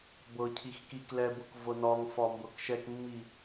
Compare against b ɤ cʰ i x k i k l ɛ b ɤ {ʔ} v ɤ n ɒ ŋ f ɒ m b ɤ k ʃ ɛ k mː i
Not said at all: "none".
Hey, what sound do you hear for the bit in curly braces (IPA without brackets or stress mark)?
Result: k